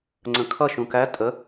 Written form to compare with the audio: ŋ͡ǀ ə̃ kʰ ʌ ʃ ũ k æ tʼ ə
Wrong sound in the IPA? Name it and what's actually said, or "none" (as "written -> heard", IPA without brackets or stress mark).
none